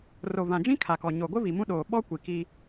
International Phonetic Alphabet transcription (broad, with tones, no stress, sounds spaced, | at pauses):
r o˨ v ã˨ d͡ʒ ĩ˦ kʰ a˨ k ɔ˨ ɲ o˨ ɡʷ ɪ˦ v i˨ m ũ˦ ɗ oː˨ ɓ ɔ˦ kʷ i˨ k i˦